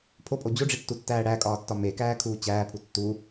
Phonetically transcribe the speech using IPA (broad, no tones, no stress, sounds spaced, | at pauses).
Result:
pʰ o pʼ o d͡ʑ o ɖ͡ʐ i tː u tː æː ɽ æ kʼ ɒː tː ɒ m e k æː kʰ uː t͡ɕ æː pʰ u tː u